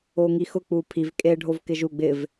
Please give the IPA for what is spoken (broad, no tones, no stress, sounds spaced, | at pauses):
o ŋ i x ʊ k͡p u pʰ i v kʼ e ɖʱ o v k ɪ ʒ u ɡ͡b ɪ v